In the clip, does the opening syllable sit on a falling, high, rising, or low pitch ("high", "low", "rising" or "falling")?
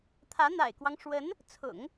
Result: rising